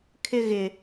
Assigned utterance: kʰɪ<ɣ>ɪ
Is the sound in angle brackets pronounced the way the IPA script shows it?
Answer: yes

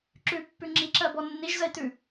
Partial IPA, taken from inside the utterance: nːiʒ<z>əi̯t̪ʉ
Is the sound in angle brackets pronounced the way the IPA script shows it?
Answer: yes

